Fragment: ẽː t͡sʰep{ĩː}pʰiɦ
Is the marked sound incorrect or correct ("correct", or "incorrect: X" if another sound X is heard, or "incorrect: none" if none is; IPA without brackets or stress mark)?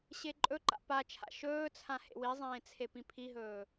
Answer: incorrect: ĩ